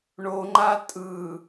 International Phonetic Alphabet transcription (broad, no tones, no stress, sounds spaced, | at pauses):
ɳ o ŋ͡ǃ a tʼ ɯ